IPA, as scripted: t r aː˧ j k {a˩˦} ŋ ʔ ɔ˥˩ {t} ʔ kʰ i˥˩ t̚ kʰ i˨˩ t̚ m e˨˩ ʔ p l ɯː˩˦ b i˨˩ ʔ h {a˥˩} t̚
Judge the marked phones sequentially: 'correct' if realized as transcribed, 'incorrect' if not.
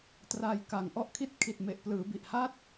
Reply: incorrect: a˨˩, incorrect: none, correct

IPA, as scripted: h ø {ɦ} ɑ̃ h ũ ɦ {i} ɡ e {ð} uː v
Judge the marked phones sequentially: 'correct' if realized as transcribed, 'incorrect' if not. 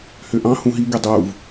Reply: incorrect: ʔ, correct, incorrect: dˤ

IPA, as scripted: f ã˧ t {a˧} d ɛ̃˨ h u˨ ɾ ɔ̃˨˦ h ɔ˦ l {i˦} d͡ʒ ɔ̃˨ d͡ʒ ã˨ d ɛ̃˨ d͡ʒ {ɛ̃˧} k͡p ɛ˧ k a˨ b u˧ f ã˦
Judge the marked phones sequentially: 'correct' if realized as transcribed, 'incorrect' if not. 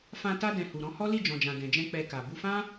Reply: correct, incorrect: i˦˨, correct

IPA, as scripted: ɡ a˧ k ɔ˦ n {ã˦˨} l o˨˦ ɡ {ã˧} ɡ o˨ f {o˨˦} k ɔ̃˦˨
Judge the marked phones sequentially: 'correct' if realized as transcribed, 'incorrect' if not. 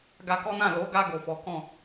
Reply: correct, incorrect: a˧, incorrect: ɔ˨˦

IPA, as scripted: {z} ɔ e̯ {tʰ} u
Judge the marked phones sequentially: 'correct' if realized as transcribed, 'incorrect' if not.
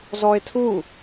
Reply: correct, correct

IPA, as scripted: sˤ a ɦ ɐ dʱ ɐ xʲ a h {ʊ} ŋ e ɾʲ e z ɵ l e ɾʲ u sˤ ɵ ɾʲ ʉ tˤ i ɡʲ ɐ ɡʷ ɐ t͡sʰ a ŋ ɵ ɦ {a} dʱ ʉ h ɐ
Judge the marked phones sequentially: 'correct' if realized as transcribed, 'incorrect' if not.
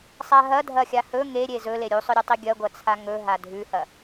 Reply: incorrect: ɵ, correct

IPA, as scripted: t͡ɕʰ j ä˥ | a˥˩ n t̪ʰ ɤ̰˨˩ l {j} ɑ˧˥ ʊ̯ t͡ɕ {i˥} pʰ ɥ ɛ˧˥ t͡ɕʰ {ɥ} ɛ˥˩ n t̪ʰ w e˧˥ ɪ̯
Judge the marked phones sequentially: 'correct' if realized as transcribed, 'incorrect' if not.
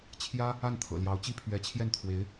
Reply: correct, correct, incorrect: j

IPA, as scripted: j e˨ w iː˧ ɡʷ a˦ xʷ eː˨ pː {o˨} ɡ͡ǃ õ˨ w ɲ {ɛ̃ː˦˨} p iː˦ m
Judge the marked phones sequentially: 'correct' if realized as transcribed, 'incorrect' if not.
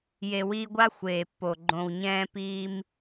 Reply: correct, incorrect: ɛ̃ː˦

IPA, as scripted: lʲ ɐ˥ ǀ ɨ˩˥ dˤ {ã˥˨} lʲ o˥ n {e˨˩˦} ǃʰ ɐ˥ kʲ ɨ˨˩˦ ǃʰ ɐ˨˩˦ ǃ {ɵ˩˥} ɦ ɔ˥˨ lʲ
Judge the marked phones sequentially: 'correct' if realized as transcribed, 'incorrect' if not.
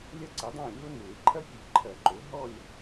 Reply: correct, correct, incorrect: o˩˥

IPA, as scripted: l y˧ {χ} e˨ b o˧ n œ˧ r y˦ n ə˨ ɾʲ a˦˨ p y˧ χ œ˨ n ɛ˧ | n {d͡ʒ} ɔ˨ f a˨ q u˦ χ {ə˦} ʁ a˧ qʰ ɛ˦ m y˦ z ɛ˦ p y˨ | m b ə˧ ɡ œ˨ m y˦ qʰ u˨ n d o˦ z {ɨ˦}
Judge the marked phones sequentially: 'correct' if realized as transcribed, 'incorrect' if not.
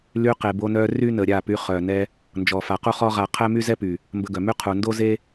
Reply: incorrect: q, correct, incorrect: ɔ˦, incorrect: e˦

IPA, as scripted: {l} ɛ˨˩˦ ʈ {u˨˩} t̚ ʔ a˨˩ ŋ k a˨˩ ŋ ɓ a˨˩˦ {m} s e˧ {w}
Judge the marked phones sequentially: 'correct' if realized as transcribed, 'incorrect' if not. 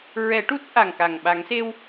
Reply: incorrect: ɹ, incorrect: u˦˥, incorrect: ŋ, correct

